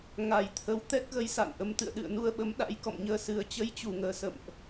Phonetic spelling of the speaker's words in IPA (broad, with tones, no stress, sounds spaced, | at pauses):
ŋ a˨˩ j t̪ʰ ə˨˦ w t̪ ɛ˦˥ k̚ ɣ ə˨˦ j s a̰˧˨ n ʔ ə˨˦ m t̪ ɨ̰˧˨ ə̯ ɗ ɨ̰˧˨ ə̯ n u˧ ə̯ ɓ ə˨˦ m ɗ a̰˧˥ j k ɔ̰˧˨ m ɲ əː˧ s ɨ˨˩ ə̯ t͡ɕ ə˧ j t͡ɕ u˧˩ ŋ əː˧˩ s ə̰˧˨ m ʔ